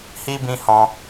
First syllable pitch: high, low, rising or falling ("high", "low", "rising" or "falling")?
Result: high